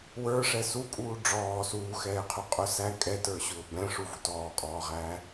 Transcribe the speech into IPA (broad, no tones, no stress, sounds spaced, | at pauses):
w ə˞ ʂ ɛ s u kʼ uː ɖ͡ʐ ɔː s uː x ɛː qʰ u qʼ ʊ s æ kʼ ɛ t ə˞ ɕ ʊː b ɛ̃ ʂ u v u t ɔː kʼ ɔː ʁ æː